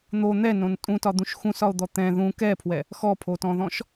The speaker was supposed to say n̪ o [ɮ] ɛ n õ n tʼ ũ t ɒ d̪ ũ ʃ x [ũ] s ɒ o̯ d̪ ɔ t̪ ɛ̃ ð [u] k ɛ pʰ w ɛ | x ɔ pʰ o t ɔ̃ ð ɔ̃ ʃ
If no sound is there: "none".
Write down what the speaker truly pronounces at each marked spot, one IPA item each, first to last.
n̪, ũ, ũ

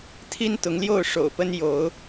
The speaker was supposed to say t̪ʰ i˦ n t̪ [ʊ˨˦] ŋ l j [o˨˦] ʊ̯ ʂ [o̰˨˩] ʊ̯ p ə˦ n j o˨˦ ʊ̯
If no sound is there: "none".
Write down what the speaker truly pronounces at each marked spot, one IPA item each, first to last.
ʊ˨˦, o˥˨, o̰˨˩

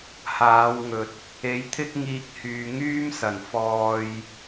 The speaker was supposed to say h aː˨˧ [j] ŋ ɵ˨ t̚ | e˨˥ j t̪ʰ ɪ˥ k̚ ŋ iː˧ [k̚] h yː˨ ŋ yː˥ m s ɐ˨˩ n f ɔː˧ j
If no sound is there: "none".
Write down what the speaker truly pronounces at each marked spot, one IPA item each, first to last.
w, k̚

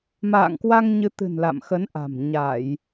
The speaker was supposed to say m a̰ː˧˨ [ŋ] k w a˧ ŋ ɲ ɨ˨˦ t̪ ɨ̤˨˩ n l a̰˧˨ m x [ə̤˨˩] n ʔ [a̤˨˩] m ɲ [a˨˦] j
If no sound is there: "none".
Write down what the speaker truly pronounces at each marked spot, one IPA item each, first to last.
ŋ, ə˨˦, a̤˨˩, a˧˩˨

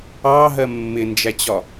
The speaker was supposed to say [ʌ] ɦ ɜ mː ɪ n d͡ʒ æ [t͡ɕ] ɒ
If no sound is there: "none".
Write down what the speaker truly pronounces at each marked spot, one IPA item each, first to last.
ɑ, t͡ɕ

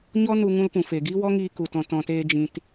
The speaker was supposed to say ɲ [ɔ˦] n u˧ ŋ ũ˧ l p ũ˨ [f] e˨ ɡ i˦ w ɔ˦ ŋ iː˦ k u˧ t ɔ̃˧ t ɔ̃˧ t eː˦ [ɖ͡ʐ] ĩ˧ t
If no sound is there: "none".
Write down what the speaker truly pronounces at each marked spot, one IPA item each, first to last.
ɔ˦, f, d͡ʒ

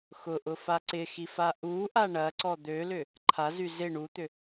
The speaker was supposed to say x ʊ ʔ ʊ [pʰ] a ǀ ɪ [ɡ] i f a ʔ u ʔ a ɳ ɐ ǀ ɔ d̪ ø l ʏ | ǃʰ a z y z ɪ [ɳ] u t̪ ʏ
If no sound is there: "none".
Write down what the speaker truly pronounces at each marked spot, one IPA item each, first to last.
f, x, ɳ

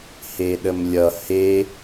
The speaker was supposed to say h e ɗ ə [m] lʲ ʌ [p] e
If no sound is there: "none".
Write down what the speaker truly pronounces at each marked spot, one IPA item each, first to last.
m, h

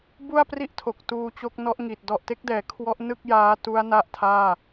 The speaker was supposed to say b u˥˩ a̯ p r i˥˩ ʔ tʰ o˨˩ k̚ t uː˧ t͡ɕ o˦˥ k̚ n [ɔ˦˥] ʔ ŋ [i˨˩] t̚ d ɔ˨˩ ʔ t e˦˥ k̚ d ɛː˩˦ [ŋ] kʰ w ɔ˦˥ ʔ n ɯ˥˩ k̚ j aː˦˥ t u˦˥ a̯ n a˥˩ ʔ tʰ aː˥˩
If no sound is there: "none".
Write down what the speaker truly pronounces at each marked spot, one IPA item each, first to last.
ɔ˦˥, i˨˩, none

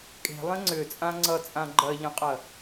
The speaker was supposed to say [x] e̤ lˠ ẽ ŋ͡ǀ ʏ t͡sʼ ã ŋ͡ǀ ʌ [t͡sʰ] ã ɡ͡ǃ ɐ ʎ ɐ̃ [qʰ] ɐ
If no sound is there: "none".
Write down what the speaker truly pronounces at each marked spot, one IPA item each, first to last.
kʼ, t͡sʼ, qʼ

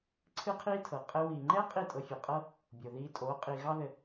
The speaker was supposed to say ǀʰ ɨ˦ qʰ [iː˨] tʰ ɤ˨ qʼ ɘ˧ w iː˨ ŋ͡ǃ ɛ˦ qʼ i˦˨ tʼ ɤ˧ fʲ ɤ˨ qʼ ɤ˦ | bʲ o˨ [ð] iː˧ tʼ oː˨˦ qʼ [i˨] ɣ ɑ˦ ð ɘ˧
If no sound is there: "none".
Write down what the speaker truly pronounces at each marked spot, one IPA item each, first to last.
iː˦, ð, i˨

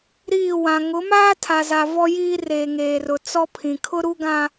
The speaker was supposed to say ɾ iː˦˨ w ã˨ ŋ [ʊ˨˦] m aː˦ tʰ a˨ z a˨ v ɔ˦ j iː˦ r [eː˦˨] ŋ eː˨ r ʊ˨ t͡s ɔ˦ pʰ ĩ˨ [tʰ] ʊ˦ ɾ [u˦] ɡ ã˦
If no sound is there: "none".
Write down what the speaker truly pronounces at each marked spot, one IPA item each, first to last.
ʊ˨˦, eː˨, kʰ, u˦

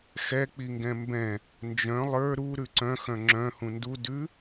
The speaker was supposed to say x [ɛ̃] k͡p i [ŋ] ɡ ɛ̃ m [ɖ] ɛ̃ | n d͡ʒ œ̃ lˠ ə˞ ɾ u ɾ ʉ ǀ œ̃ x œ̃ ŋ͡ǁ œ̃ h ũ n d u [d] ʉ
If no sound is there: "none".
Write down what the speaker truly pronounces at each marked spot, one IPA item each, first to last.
ɛ, ŋ, b, d

